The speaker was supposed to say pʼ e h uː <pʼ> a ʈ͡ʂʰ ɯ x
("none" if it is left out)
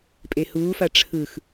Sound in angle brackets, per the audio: f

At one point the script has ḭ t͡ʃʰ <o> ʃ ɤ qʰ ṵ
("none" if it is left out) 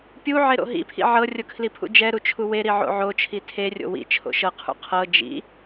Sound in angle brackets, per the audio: o̰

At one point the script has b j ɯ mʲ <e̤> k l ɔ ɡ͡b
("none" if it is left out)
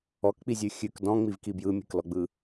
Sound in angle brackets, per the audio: e̤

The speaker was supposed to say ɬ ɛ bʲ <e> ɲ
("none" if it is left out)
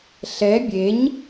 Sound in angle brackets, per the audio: e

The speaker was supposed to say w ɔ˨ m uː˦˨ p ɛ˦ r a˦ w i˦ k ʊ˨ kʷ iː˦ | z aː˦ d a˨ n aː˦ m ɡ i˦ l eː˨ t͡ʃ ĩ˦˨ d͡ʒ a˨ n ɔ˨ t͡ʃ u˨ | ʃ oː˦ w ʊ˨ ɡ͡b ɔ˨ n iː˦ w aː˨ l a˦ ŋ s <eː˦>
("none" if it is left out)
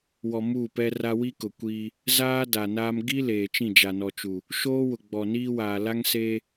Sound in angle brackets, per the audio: eː˦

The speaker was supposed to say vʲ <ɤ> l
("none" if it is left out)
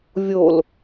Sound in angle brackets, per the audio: o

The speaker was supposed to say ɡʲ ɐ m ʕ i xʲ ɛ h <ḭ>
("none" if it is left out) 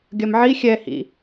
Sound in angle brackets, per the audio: ḭ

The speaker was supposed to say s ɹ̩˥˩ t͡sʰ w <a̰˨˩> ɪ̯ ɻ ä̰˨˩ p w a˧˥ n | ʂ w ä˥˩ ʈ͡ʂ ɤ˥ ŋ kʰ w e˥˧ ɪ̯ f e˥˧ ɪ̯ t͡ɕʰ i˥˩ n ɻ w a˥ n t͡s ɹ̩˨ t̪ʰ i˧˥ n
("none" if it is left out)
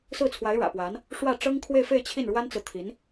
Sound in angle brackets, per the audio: a˧˥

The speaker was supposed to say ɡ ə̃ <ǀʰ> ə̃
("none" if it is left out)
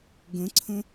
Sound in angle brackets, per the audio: ǀʰ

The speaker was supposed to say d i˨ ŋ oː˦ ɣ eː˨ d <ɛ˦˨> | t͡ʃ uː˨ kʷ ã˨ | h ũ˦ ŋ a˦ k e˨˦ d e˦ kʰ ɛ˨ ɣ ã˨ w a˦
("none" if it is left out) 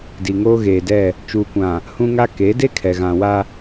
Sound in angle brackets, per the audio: ɛ˦˨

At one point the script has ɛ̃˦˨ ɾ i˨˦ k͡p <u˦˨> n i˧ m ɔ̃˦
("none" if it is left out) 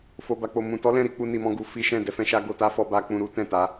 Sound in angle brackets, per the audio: u˧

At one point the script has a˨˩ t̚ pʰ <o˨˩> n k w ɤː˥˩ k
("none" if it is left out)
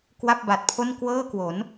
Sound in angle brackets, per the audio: o˥˩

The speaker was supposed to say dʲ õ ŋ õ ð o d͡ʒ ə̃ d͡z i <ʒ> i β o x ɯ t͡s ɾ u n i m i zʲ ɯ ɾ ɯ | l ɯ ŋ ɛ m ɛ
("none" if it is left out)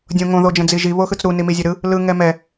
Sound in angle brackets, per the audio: ʒ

